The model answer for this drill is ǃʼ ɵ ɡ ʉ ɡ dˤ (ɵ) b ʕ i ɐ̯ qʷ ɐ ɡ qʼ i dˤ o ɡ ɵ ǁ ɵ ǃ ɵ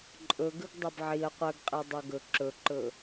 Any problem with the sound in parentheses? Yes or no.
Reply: no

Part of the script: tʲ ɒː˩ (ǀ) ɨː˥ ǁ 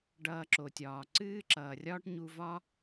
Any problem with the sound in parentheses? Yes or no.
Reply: no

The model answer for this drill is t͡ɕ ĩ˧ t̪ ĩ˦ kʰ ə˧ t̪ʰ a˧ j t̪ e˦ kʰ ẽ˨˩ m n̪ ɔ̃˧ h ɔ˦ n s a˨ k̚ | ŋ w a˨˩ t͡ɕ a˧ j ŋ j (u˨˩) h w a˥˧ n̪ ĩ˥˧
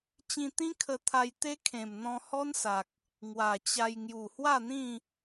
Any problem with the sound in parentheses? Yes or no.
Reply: no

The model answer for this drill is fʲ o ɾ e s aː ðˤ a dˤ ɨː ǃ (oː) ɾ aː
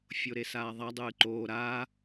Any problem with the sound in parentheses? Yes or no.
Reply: no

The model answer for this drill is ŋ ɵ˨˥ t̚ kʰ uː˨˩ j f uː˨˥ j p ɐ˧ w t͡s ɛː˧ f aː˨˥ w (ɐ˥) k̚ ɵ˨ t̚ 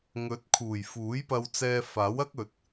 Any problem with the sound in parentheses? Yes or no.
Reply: no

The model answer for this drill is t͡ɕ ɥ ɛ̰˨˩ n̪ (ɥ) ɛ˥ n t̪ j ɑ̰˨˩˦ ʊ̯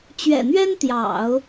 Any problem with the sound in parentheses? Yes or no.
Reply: no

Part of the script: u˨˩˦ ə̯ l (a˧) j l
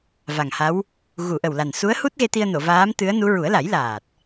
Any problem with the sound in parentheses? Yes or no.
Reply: yes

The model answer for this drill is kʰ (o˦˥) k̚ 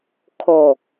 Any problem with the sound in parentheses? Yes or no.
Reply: yes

